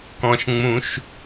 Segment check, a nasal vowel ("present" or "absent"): present